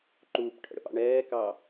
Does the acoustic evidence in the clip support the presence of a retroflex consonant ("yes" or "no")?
yes